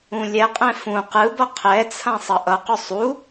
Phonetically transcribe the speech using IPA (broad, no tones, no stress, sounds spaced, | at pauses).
ũ lʲ ɛ qʼ ɛ̃ f ũ q ɯ b ʌ qʰ ɛ t͡sʰ ã sˤ ʌ ʔ ʌ q u sˤ u